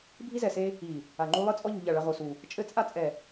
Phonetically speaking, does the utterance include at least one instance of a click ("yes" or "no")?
yes